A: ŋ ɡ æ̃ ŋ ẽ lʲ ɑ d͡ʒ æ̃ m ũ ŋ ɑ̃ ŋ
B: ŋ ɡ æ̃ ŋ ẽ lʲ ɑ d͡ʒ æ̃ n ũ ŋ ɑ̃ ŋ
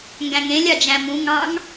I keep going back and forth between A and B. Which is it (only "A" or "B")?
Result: A